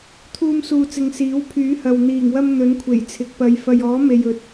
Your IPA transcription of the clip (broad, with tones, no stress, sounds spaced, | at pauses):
t̪ʰ uː˧ m s uː˨ t͡s ɪ˨ ŋ s iː˨˥ w pʰ yː˨˥ h ɐ˨ w n̪ iː˨˩ ŋ w ɐ˧ m n̪ ɵ˨˥ n kʷʰ e˨˩ j t͡sʰ ɪ˨ k̚ p ɐ˨˧ j f ɐ˨ j ɔː˨˥ m e˨ j ɵ˨˥ t̚